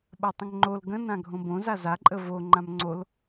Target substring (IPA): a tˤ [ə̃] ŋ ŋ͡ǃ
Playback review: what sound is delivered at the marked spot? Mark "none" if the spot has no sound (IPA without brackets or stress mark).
ə̃